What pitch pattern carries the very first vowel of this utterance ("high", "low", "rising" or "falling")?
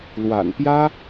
low